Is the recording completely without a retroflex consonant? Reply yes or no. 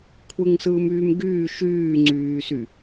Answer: yes